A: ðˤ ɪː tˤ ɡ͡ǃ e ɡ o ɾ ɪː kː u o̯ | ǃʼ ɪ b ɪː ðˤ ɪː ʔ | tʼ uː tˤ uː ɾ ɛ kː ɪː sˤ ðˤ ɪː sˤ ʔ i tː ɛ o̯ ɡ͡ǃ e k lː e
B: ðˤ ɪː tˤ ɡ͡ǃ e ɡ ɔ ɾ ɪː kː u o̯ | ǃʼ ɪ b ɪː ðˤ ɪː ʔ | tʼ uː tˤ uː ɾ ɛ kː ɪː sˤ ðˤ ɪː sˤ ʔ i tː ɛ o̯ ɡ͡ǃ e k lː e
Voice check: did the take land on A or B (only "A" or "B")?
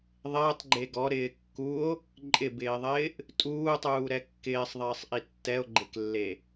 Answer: B